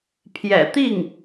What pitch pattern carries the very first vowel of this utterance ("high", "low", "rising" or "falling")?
low